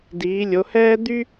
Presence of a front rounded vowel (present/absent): present